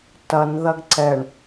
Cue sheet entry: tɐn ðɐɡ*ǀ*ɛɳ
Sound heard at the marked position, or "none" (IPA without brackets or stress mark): ǀ